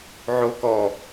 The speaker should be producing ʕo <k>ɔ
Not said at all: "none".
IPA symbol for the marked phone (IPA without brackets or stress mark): k